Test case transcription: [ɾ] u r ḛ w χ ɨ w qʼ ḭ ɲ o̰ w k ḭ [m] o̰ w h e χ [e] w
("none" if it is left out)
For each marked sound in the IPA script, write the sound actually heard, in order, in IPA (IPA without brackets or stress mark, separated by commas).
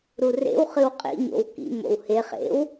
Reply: ɾ, m, ḛ